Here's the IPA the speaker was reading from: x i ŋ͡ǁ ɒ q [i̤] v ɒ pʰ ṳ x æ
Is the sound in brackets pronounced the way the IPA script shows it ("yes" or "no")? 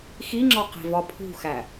yes